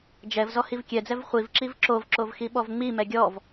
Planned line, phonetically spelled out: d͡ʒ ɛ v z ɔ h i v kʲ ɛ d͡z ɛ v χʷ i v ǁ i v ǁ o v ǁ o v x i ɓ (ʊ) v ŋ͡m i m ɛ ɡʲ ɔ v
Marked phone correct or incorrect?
incorrect